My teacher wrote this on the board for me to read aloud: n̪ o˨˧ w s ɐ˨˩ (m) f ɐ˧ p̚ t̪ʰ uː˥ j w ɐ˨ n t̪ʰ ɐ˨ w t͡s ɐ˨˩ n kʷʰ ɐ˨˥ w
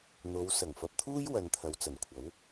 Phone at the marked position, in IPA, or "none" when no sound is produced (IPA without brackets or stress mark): ŋ